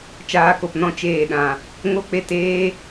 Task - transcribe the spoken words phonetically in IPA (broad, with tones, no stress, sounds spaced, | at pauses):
t͡ʃ aː˧ k o˨ p n ɔ̃˦ t͡ʃ eː˦˨ ɗ ã˨ | ŋ o˦ k͡p e˦˨ t eː˦